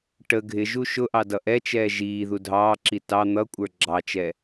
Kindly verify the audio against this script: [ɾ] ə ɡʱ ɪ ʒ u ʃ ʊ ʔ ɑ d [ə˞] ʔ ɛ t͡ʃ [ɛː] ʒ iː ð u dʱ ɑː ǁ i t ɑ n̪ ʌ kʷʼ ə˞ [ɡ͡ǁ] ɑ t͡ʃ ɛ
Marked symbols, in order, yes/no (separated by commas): no, no, yes, yes